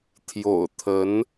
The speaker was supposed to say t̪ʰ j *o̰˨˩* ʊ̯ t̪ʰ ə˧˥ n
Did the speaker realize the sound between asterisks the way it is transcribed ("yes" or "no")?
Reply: yes